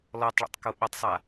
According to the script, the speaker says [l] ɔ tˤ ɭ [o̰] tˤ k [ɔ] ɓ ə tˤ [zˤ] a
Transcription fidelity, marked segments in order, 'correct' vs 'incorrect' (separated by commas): correct, correct, incorrect, incorrect